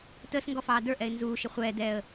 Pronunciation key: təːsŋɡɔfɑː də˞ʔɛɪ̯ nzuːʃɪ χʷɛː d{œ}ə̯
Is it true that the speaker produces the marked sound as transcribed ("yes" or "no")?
no